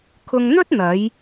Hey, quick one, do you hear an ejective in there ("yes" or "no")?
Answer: no